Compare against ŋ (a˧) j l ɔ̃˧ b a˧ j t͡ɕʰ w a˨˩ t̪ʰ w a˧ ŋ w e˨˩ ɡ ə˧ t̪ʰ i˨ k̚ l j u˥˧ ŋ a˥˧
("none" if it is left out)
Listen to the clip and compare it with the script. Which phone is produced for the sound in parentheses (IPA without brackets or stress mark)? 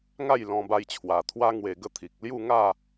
a˥˧